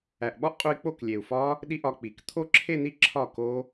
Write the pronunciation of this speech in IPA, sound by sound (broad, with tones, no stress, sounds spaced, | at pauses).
æ˨˩ ʔ ɓ ɒ˦˥ ʔ qʼ u˧ i̯ k͡p o˥˩ k lʲ e˨˩ u̯ f ɒ˦˥ | ɗ i˥˧ ʔ ɒ˧ k͡p i˩˧ k t̪ʰ o˦˥ ǁʰ e˥˧ n̪ i˥˩ ǁʰ ɒ˥˩ k o˦˥